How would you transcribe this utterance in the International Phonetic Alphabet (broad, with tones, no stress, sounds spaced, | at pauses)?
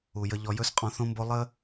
u˨ j ə˧ ʎ ɔ˧ j ɵ˦ s qʼ ɔ̃˧ θ õ˦ m b o˦ lˠ ə˦